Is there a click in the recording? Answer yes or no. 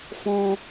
no